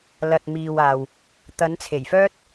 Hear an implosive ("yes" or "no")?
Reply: no